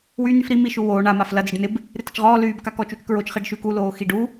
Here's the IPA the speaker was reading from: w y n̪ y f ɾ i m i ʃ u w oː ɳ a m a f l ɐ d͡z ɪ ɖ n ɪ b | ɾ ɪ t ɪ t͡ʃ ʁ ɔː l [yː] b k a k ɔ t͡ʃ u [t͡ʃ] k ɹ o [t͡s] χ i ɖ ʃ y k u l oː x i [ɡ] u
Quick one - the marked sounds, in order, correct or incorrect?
correct, correct, incorrect: t͡ʃ, incorrect: ɖ

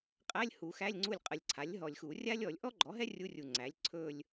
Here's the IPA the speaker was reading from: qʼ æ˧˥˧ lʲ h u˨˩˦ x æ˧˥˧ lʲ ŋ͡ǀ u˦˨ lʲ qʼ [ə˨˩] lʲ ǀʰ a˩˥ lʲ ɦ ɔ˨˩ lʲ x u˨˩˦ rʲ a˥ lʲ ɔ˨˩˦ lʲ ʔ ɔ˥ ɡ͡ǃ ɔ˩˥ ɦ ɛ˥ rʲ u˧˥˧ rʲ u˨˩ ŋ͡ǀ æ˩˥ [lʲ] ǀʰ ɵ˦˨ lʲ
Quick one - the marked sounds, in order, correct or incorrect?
correct, correct

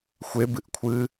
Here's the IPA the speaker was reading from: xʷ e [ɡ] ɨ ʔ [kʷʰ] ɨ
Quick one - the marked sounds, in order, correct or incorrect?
incorrect: b, correct

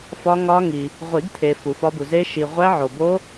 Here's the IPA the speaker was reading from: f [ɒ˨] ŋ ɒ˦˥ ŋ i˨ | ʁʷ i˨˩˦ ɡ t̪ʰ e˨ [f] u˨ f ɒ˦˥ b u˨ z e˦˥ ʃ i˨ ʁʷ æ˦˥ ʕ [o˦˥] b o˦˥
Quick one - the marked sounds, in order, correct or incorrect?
incorrect: ɒ˦˥, correct, incorrect: o˨

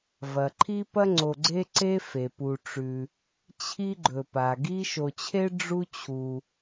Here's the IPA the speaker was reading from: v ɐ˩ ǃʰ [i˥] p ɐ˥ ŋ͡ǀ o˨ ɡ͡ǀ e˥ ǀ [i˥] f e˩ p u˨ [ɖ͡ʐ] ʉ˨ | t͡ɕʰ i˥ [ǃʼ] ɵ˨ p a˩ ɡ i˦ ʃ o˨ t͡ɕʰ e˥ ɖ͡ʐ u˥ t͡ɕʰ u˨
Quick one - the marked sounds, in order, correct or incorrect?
correct, incorrect: e˥, incorrect: ʈ͡ʂ, incorrect: ɡ͡ǃ

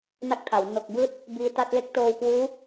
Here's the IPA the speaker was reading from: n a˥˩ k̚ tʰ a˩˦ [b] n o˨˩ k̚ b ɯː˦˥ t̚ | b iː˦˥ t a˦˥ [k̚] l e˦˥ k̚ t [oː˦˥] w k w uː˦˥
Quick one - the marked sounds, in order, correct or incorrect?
incorrect: w, incorrect: t̚, incorrect: oː˧

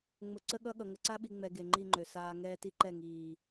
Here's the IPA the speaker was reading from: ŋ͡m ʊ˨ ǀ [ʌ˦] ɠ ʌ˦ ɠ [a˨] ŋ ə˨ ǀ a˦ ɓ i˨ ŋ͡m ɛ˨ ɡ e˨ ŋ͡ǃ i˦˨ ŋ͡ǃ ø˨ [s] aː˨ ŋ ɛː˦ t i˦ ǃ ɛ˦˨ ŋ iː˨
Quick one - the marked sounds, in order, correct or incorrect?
incorrect: ə˦, incorrect: ʌ˨, correct

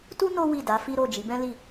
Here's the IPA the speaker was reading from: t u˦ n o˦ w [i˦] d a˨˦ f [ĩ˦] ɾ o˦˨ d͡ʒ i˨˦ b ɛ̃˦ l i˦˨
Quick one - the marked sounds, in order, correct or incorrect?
incorrect: i˦˨, incorrect: i˦

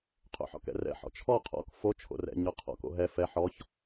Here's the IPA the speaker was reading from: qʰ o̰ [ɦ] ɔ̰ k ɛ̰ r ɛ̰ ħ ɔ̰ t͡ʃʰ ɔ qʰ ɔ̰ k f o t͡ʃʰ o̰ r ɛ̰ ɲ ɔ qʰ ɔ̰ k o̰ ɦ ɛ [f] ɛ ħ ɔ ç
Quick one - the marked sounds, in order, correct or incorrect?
incorrect: ħ, correct

